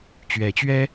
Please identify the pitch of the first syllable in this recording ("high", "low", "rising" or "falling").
rising